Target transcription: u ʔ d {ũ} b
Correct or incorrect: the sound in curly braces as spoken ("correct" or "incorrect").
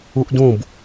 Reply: correct